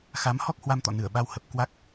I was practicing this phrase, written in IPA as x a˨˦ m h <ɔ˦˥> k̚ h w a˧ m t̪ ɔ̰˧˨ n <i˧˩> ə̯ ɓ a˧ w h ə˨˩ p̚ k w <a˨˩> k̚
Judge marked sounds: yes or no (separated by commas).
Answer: yes, no, no